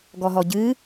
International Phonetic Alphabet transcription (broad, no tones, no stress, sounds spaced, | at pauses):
ɡ ɔ ɦ ɔ ɟ ɨ